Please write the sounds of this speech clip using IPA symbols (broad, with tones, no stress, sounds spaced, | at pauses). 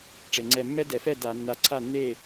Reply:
ʈ͡ʂ e˩ ŋ͡ǀ ɛ˧˩ mː ɛ˦ d ɛ˩ f ɛ˥˩ d a˧˩˧ nː a˧˩ ǀʰ a˥˩ nː e˥˩